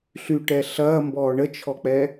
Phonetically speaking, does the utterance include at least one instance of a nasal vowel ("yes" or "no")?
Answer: no